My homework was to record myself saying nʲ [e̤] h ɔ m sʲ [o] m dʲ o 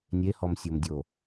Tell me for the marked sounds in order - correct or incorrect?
incorrect: e, correct

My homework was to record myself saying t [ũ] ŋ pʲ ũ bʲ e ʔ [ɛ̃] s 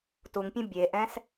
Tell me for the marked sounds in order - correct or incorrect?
incorrect: u, correct

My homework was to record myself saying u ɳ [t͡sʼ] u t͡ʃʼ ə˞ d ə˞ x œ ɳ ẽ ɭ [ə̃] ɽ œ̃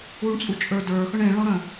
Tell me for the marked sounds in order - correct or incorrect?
correct, incorrect: ɔ̃

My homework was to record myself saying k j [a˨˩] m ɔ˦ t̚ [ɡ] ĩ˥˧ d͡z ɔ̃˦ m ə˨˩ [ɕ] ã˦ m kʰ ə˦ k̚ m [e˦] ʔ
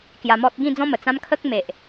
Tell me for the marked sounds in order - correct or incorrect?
incorrect: a˧, correct, incorrect: t͡s, incorrect: e˨

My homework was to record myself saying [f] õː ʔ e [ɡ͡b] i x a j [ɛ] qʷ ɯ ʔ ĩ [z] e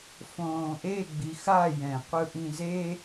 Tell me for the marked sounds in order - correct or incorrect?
correct, correct, incorrect: ɛ̃, correct

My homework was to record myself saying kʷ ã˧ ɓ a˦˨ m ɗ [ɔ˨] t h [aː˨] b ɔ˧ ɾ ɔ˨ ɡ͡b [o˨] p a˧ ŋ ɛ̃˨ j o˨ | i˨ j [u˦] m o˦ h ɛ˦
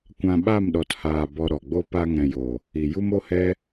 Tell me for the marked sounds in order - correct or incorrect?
correct, correct, incorrect: o˦, correct

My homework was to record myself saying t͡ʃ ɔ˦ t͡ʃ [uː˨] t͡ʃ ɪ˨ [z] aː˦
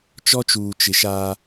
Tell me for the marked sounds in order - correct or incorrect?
correct, incorrect: ʃ

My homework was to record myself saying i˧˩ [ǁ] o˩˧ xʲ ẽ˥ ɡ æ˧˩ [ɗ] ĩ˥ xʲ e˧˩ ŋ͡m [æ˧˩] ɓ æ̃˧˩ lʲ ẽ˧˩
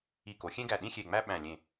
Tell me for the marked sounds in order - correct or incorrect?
incorrect: k, correct, incorrect: æ˥

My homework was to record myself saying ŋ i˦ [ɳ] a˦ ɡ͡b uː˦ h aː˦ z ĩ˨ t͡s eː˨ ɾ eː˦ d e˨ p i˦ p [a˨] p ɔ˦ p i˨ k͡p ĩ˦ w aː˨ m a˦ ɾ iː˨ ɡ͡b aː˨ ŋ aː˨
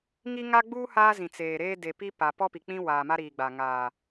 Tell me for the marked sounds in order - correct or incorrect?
incorrect: ŋ, correct

